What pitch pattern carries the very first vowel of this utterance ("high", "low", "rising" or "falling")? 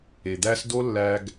low